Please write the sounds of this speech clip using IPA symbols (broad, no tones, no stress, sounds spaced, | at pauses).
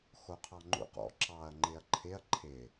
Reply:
x o qʰ ɑ ŋ͡ǃ ṵ q ɔ̰ ǁ ɑ ɐ̯ ŋ͡ǃ ɪ ɐ̯ ǃʰ ɪ ɐ̯ ǃʰ ɪ